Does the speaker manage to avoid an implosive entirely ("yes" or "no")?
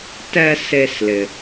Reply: yes